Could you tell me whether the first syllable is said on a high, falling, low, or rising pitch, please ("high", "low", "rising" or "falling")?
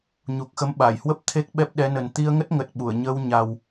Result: low